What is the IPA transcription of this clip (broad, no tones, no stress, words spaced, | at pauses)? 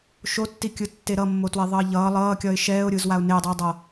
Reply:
ʃotːikʲɯtːe ɾʌmːotweðˤʌː ʎʌː lˠʌːkʲʌɪ̯ ʃɛːʊ̯ɾʲɯːzwaʊ̯ nedˤiʊ̯dˤʌː